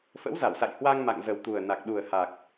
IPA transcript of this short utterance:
f ə̰˧˥ w z a˧˩ w s a̰˧˨ j h w a˧ ŋ m a̰˧˨ ŋ z ə˨˩ w t̪ u˨˩ ə̯ n a˨˩ k̚ ɗ u˨˩ ə̯ h a˨˩ k̚

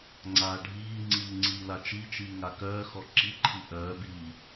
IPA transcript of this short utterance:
ŋ͡ǀ aː ɖʱ iː ŋ͡ǀ iː ŋ͡ǀ iː l a t͡ʃ i t͡ʃ iː ŋ a k œː x ɔ ǁ i ǃʰ i ʔ œː b iː

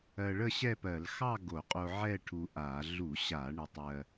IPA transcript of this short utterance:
ɜ˧ ɭ ə˥˧ ɕ ɛ˥˧ p ɜ˧˩˧ l x ɑ˥˧ ɡ o˧˩˧ qʼ o˧ ʕ ɛ˥˧ ʈʰ u˧ ʔ a˧˩˧ ɮ u˧˩˧ ɕ a˧˩˧ ɳ ɪ˧ tˤ ɜ˧

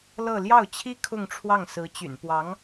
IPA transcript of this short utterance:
l ɤ˥˧ l j ɑ˥˩ ʊ̯ t͡ɕʰ i˥ kʰ ʊ˥˧ ŋ ʈ͡ʂʰ w ɑ˥˩ ŋ s ɹ̩˧˥ t͡ɕ y̰˨˩ n p w ɑ˧˥ ŋ

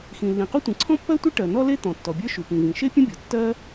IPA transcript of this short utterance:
x ĩ˩ lː ĩ˩ q u˥ tʷ ĩ˩ ǀʰ ɔ̃˥ pː ɜ˥ tʷ e˥ ʈ ɜ˩ n ɔ˥ l e˥ t̪ ɔ̃˩ tː ɔ˩ bʲ ə˞˥ ʃ u˩ p ĩ˩ v ĩ˩ ʃ e˥ pʲ ə̃˥ bʲ ɔ˩ tː ɜ˥

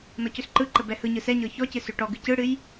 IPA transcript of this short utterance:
n ɔ c ø s ǃ ɯ ǃ ə b ɛ h ɯ ɲ ɯ s ɛ ɲ ɤ ç ɔ c ɨ s ø ʈ ɔ ɡ ɨ c ɯ ɽ ɨ j

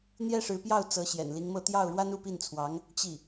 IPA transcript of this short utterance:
n̪ j ɛ˥ ʂ ɻ̩˧˥ p j ɑ˥˩ ʊ̯ t͡s ɤ˧˥ ɕ j ɛ̰˨˩ n l i˧˥ ŋ m ɤ˥˧ t̪ j ɑ˥˩ ʊ̯ ɻ w a˥ n u˥˧ p i˥˩ n t͡sʰ w ɑ˧˥ ŋ | t͡ɕ i˥˩

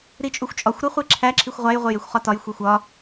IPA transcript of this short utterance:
ɾ i t͡ʃʼ u xʷ t͡ʃʼ ɒ xʷ ɾ o χʷ e ǁʰ æ ǁʰ i xʷ ʁʷ æ j ʁʷ e j e xʷ χ ɒ t ɒ j xʷ e xʷ ɒ

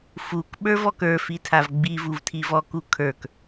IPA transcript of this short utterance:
f u k ɓ ə˞ v ɔ k ə˞ f i tʰ a v ɡ͡b i v u v tʰ i v ɔ k u kʰ ə˞ k

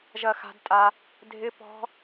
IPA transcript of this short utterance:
ʒ ɐ˧ x a̤˧ d tʼ a˧ | dʱ ɪ˦ p ɔ̤˦

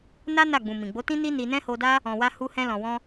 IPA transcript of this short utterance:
n a˦ n a˦˨ ɡ͡b ũ˨ m ĩ˨ ɡ͡b o˨˦ t ĩ˦ n i˦ n i˧ n ɛ̃˦ h o˧ d a˦ | ɔ̃˨ w a˧ h u˧ h ɛ̃˧ l ɔ̃˨ w ɔ̃˧

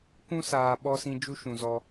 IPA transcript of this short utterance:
k ũ˦ s aː˧ ɓ ɔ˧ s ĩ˧ d͡ʒ u˧ ʃ ũ˨ z ɔ˧

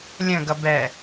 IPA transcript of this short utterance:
lʲ ə̃ ɡ ʌ b ɛ

